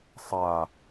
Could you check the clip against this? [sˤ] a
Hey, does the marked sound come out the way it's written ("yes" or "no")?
yes